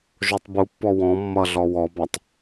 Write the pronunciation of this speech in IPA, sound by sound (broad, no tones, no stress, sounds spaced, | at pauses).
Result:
ʒ o tˤ b u pː ɔ w ɔ̃ mː ʌ ɮ ɔ w ɔ b a tˤ